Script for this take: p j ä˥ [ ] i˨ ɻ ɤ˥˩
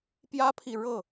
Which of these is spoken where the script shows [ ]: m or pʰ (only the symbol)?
pʰ